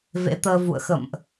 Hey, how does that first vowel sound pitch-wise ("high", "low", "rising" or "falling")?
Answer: rising